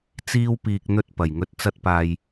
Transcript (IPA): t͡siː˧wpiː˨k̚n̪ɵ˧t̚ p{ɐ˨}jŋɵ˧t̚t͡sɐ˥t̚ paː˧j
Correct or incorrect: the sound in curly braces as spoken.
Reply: incorrect: ɐ˨˩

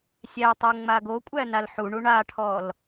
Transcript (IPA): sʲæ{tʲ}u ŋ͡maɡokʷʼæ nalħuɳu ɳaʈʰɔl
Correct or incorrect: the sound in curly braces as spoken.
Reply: incorrect: tˤ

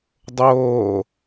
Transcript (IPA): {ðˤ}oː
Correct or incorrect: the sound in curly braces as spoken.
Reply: incorrect: dˤ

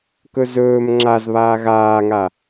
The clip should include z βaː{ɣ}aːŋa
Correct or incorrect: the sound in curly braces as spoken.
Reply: correct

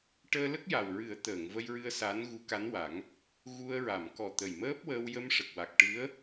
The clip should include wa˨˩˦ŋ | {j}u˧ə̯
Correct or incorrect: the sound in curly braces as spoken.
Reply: incorrect: ɣ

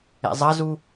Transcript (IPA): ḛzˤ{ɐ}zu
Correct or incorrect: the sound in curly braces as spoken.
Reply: correct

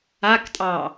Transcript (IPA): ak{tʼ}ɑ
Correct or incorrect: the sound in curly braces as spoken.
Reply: correct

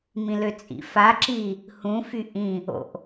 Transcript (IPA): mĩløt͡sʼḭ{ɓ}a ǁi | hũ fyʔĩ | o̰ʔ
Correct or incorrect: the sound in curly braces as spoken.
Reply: incorrect: f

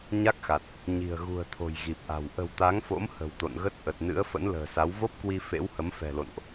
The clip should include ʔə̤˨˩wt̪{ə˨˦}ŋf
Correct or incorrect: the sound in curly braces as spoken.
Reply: incorrect: a˨˦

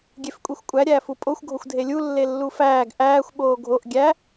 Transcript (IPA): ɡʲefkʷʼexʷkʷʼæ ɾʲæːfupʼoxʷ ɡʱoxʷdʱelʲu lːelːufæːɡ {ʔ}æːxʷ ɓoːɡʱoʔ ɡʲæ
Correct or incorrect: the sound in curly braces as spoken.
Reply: correct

